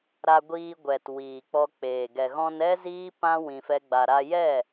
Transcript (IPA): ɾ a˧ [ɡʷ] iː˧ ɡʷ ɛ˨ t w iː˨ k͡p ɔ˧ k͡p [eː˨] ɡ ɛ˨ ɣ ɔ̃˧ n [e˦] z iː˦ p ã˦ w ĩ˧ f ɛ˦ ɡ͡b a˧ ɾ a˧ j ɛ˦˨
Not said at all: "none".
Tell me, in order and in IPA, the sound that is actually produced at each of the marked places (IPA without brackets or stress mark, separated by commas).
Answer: ɡʷ, eː˨, ɛ˦